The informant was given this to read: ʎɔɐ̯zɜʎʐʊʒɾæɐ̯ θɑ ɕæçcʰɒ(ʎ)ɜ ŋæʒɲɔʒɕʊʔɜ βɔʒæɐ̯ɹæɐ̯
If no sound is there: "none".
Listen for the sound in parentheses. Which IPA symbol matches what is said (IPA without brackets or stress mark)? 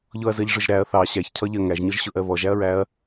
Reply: ʎ